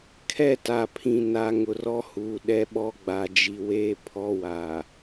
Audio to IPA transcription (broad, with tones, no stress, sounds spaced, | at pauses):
kʰ ɛ˦˨ t a˨ pʰ ĩ˨ n a˨ ŋ ʊ˨ r ɔ˦ h uː˨ ɗ ɛ˦ ɓ ɔ˦ ɡ͡b a˨ d͡ʒ i˨ w eː˦ pʰ ɔ˦ w a˨